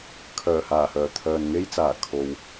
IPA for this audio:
kʰ œː˨˩ h aː˨˩ h œː˨˩ t̪ʰ œː˨ n ŋ e˥ j t͡s aː˨˩ kʰ o˨ w

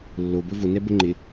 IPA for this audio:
lː o b ɵ v ʊ n ɛ b ʊ ŋ͡ǃ ɪ

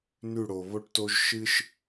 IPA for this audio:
n ʉ˦˨ ɽ o˨ β o˦ ʈ t o˦ ʒ ʃ ɨ˦ ʃ

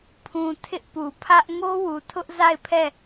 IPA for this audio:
pʰ ũ˨ tʰ ɪ˦ ʔ p u˨ pʰ ä˦ ʔ ŋ o˦ w u˨ tʰ ʊ˦ ʔ z a˦˨ ɪ̯ pʰ ɛ˦˨

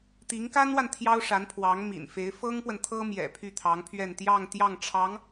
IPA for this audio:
t̪ i˧˥ ŋ k a˥ n w a˨ n t̪ʰ j ɑ˥ ʊ̯ ʂ a˧˥ n pʰ w ɑ˧˥ ŋ m ḭ˨˩ n f e˧˥ ɪ̯ f ɤ˥ ŋ p w ə˨ n t̪ʰ ɤ˥ m j ɛ̰˨˩ pʰ y˥˩ t̪ʰ ɑ˧˥ ŋ pʰ ɥ ɛ˥˧ n t̪ j ɑ˥˧ ŋ t̪ j ɑ˥˩ ŋ ʈ͡ʂʰ ɑ˧˥ ŋ

